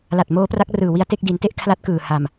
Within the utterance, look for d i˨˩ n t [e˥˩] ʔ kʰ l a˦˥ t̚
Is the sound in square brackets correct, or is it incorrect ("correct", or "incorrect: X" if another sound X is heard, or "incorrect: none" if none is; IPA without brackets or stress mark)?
correct